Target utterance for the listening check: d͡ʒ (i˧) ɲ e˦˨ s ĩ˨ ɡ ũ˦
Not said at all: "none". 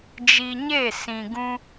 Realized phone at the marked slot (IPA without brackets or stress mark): i˧